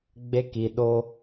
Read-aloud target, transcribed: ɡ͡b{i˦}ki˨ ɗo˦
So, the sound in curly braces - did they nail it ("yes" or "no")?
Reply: no